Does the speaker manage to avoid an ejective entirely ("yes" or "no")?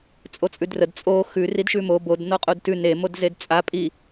no